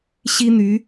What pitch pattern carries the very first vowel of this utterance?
high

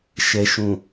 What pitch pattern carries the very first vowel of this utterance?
low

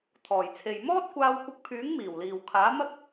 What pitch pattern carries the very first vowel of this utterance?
low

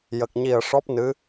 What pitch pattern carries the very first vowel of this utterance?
low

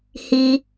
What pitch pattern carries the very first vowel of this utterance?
high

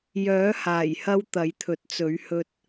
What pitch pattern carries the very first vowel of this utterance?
rising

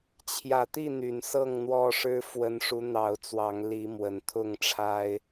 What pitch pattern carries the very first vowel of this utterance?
low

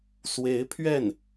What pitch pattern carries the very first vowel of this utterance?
rising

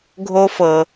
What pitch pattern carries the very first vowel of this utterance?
high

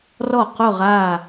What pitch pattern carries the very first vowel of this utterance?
falling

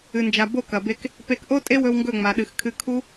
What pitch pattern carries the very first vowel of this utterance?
low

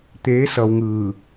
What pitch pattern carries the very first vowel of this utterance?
rising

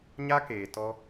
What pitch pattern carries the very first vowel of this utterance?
high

